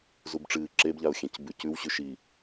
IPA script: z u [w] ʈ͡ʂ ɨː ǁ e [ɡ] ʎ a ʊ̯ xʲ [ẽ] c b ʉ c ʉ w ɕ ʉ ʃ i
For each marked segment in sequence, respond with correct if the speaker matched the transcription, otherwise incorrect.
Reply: incorrect: b, incorrect: b, correct

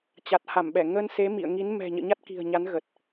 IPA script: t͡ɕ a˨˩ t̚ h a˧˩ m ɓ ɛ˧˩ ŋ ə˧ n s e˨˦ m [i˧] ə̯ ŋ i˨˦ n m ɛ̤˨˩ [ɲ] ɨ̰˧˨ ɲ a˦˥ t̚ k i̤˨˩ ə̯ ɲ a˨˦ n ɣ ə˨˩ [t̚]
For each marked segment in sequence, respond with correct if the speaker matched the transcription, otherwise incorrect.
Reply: incorrect: ḭ˧˨, correct, correct

